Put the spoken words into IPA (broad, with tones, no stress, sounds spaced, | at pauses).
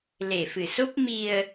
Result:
l e˨˩ f ɨ˨˩ s o˦˥ p̚ m i˧ ə̯